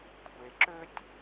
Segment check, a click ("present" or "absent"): present